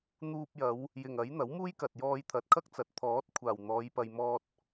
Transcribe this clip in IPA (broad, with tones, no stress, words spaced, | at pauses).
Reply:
n̪uː˧p̚jɐ˨˧w | jɪ˨˩ŋɐ˨˥j n̪ɐ˨˥wmuː˥jkɐ˨t̚ jɔː˧jt̪ʰɐ˨˥t̚kʰɐ˥k̚t͡sɐ˨˥t̚ t̪ʰɔː˨˥t̚kʷʰaː˨˩w n̪ɔː˨˧jpɐ˨jmɔː˧t̚